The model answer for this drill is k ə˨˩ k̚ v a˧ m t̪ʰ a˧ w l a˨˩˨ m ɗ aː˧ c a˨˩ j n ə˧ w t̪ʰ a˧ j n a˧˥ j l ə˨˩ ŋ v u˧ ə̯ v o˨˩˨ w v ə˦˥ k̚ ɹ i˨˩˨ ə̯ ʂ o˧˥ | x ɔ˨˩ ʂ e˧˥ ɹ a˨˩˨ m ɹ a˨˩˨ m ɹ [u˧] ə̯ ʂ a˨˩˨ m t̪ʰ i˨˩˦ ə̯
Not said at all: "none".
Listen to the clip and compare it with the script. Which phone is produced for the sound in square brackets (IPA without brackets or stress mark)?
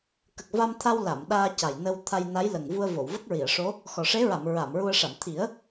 u˧